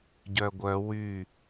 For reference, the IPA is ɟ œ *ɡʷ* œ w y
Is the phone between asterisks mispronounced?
no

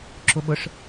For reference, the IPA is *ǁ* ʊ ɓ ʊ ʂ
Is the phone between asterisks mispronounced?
no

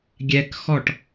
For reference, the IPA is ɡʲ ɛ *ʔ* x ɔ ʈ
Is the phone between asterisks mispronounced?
yes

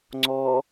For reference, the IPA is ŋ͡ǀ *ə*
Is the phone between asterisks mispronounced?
yes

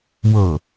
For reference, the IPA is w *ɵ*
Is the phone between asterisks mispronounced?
yes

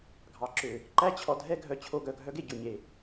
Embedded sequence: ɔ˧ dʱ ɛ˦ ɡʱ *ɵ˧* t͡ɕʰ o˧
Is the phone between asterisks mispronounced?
yes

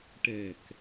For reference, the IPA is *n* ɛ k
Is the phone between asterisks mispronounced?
yes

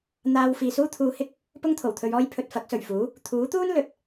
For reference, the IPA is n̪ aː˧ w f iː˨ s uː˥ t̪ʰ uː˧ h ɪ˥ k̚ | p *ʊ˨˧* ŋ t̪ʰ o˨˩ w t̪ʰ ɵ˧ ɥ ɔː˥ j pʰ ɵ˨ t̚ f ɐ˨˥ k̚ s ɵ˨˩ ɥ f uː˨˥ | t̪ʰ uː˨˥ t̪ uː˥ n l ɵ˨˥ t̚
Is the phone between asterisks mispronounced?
yes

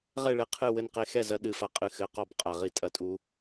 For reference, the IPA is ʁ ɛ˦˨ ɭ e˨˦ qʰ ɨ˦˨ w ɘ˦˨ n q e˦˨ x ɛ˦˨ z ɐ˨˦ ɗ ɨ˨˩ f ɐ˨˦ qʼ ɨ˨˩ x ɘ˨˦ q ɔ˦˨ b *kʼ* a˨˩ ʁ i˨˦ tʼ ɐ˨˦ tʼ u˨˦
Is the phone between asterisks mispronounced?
yes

